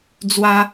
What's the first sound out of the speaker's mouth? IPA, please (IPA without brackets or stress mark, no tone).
d͡z